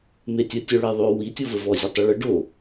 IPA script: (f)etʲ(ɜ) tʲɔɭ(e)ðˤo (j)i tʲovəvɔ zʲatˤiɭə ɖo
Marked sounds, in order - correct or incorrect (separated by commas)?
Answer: incorrect, correct, correct, incorrect